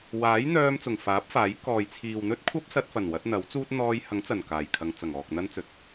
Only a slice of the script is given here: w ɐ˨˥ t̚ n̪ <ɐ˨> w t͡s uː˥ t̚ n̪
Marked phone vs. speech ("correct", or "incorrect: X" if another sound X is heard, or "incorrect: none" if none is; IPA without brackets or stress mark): incorrect: ɐ˨˥